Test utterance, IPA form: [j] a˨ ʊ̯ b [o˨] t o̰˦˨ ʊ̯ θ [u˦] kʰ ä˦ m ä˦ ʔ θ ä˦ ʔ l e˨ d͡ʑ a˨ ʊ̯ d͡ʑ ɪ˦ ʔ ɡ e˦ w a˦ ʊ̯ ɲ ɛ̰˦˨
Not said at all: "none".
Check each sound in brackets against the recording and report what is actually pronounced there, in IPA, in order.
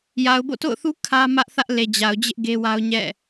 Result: j, o̰˦˨, u˦

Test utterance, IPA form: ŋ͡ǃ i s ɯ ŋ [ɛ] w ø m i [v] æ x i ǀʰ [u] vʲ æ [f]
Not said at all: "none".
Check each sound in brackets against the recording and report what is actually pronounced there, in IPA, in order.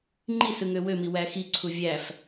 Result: ø, w, u, f

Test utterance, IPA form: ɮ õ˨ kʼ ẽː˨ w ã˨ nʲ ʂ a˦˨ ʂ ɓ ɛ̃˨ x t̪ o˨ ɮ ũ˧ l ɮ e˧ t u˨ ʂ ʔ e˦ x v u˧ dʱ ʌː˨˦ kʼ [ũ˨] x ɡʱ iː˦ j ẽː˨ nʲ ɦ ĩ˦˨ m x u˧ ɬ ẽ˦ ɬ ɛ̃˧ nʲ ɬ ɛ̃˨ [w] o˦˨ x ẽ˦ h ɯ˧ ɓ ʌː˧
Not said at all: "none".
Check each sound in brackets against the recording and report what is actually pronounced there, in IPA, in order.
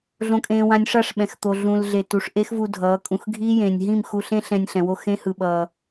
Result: ũ˨, w

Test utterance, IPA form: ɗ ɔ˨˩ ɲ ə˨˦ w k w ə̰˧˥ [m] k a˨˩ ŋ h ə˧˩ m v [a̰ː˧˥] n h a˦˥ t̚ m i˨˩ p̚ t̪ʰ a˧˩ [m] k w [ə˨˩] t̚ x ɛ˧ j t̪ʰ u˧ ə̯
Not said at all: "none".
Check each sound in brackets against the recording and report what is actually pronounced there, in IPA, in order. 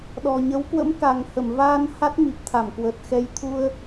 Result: m, aː˧, m, ə˨˩

